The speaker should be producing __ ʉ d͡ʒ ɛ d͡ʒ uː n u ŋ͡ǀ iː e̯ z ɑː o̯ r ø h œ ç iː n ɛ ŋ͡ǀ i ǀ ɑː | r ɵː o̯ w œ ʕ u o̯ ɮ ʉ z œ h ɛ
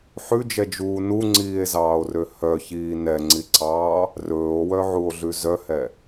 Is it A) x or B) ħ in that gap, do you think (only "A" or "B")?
B